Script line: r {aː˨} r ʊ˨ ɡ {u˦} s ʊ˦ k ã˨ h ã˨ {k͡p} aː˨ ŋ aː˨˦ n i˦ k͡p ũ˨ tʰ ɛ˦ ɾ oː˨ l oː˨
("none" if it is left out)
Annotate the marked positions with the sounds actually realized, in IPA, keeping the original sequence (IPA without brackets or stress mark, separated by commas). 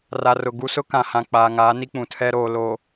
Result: a˨, u˦, k͡p